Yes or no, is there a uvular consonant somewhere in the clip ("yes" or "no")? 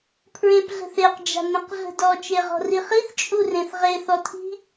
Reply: yes